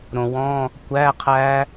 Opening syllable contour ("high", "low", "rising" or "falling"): low